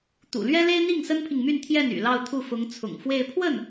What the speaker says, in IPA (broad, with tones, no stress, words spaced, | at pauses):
t̪ṵ˨˩lɥɛ˥le˥ɪ̯n̪i˥˩ŋ sə˥npʰi˨ŋmy˥˧n t̪ʰjɛ˥˩ny̰˨˩lɑ˥˧ʊ̯t̪ʰu˥˩ fʊ˧˥ŋ t͡sʰʊ̰˨˩ŋfwe˥˧ɪ̯ pʰwə˥˩n